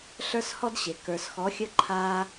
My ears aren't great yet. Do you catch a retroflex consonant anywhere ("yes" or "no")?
no